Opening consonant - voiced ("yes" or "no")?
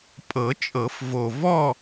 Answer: no